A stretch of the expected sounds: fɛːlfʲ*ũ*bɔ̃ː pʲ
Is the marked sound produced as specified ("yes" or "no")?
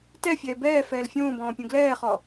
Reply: no